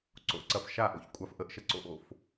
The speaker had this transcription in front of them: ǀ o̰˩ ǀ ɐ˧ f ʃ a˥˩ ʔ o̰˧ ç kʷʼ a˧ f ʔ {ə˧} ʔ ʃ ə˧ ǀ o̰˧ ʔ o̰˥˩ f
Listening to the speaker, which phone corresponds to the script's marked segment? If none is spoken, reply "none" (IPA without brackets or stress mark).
ə˧